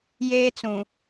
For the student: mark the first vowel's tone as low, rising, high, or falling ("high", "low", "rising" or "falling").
high